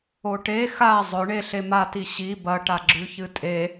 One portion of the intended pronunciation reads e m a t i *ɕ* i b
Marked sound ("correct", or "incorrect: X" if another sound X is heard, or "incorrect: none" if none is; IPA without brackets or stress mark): correct